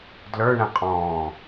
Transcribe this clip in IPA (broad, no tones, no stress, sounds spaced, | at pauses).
d l ə˞ ɳ ɛ̃ qʼ ɔ̃ː